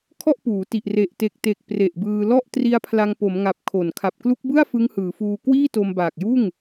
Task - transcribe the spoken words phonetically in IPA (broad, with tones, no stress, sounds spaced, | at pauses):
kʰ ɔ˥˩ ʔ p uː˩˦ t i˨˩ ʔ r e˨˩ ʔ t e˨˩ k̚ t e˨˩ k̚ p r e˨˩ ʔ b ɯː˧ l ɔ˥˩ ʔ t r i˦˥ a̯ pʰ l a˧ ŋ p o˩˦ m ŋ a˨˩ p̚ kʰ o˨˩ n kʰ a˨˩ p̚ k l u˦˥ k̚ b ɯ˥˩ a̯ f ɯ˦˥ ŋ h ɯː˩˦ f uː˧ k w iː˥˩ t o˧ m b aː˨˩ k̚ j uː˥˩ ŋ